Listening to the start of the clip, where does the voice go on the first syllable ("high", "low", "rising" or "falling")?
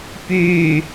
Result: low